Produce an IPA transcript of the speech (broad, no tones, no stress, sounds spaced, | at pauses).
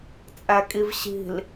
t͡sʼ æ kʼ i v ɕ i̤ l